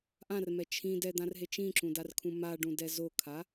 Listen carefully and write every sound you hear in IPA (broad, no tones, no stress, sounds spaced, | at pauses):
ʔ ã r m ɛ t͡ʃʰ ĩ d ɛ d̪ ã r ɦ e t͡ʃ ĩ ǁ ũ d a r kʰ ũ m a ɖ ũ d ɛ z o kʰ a